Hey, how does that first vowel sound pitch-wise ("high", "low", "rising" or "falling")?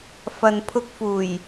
low